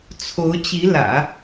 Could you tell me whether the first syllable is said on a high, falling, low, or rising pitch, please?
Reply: rising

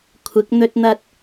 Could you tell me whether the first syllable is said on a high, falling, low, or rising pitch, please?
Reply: rising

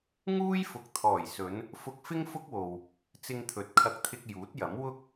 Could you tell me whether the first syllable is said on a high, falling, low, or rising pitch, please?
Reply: high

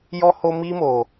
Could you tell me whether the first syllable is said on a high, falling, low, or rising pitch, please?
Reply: high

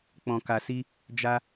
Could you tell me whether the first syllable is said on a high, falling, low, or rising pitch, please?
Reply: low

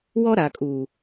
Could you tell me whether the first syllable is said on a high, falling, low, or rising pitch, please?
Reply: high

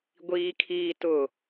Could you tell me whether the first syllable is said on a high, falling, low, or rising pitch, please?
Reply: high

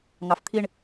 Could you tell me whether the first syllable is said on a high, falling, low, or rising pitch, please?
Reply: low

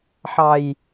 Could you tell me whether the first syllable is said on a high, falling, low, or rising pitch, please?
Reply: low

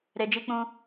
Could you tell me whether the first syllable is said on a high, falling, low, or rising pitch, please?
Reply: low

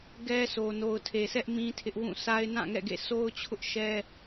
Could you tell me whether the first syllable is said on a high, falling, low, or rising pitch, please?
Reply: high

